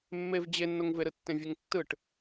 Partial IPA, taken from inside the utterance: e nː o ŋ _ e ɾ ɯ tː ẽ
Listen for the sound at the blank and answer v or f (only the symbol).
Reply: v